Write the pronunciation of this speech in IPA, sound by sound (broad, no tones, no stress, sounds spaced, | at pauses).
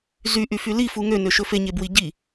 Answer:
z y ʔ y f y l i f u ŋ ø n ø ʃ ɵ f e ɲ e b w i ɟ i